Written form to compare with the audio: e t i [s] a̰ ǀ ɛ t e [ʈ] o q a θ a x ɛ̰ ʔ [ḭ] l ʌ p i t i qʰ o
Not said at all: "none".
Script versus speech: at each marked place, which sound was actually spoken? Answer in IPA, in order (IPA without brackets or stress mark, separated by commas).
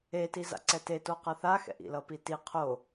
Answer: z, t, ḭ